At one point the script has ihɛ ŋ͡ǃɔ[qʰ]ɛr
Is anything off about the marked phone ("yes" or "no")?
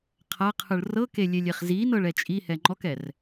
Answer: yes